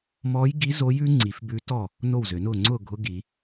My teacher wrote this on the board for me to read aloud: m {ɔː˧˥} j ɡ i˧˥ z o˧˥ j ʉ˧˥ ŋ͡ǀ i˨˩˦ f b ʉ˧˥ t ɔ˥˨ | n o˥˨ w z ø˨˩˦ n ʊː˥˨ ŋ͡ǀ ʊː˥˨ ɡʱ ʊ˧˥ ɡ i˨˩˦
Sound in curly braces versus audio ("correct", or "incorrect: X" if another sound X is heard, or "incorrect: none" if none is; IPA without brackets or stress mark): correct